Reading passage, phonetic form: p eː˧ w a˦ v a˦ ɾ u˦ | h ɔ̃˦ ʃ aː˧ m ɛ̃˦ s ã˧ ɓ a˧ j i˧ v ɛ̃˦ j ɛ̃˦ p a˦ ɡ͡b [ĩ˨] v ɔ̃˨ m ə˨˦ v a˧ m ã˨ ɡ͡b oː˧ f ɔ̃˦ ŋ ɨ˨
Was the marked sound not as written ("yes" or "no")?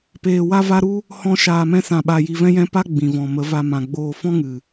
no